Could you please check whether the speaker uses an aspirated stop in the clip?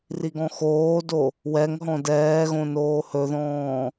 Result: no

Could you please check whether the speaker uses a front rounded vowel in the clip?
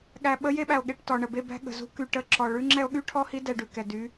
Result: yes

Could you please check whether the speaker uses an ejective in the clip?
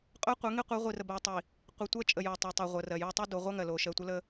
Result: yes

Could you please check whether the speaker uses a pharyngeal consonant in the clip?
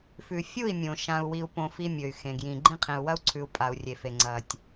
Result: no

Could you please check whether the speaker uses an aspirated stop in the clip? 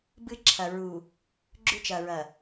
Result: yes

